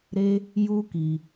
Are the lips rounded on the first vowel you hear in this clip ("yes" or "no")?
no